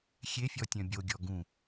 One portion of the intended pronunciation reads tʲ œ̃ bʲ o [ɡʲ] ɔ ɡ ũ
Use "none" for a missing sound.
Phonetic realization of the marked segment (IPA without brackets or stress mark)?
ɡʲ